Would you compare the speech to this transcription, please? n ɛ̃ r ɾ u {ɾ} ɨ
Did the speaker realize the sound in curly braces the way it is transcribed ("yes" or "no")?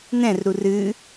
no